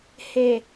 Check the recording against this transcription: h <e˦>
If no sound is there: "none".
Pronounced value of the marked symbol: e˨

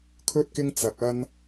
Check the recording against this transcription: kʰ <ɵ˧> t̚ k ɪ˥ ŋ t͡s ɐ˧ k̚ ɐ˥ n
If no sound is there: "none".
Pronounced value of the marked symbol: ɵ˥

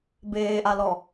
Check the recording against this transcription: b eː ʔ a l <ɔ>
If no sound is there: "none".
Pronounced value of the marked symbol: ɔ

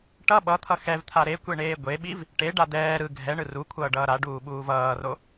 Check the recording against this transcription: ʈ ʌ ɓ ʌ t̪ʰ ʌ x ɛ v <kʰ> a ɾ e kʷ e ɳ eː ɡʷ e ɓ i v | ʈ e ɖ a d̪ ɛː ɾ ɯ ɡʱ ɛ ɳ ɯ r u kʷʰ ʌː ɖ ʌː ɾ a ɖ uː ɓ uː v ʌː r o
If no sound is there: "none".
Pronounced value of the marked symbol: t̪ʰ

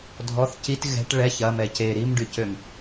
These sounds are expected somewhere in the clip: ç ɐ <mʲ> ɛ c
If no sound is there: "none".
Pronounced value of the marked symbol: m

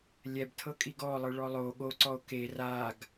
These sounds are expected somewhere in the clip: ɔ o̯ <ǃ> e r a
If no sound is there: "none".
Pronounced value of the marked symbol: k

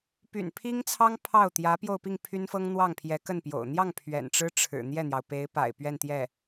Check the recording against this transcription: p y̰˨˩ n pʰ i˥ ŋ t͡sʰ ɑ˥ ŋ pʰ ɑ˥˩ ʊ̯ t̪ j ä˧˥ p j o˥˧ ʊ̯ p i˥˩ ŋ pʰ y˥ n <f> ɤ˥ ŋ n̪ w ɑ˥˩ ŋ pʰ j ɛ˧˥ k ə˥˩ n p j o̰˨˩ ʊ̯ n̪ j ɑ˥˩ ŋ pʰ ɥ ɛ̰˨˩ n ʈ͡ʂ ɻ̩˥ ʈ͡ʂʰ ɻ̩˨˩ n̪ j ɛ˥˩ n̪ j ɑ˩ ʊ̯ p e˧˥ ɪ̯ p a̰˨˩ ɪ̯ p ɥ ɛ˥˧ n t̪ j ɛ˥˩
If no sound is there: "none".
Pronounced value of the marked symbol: f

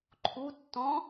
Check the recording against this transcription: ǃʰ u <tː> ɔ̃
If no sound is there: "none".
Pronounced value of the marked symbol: tː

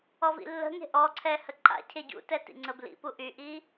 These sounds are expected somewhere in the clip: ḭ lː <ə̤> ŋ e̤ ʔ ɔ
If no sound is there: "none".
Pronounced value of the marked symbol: ə̤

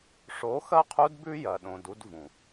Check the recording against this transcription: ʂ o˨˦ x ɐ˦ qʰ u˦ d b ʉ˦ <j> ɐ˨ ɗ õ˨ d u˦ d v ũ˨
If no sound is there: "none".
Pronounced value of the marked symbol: j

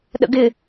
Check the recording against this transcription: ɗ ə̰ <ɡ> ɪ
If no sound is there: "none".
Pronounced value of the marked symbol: ɡ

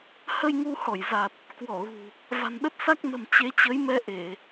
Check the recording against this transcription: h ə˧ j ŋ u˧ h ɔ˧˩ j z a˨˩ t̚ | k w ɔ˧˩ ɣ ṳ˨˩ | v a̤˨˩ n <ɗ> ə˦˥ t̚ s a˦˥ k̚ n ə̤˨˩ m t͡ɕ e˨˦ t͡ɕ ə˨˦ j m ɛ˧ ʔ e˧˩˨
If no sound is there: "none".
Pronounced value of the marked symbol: ɗ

